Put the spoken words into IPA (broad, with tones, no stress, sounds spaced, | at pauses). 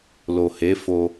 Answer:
l o˨ h e˨˦ f o˧